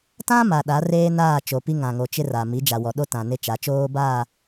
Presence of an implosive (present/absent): present